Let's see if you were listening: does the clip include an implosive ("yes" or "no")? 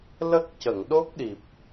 yes